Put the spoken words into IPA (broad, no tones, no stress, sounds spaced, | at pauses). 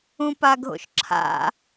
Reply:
ũ p a ɡʱ o̰ ʃ ǁʰ a̰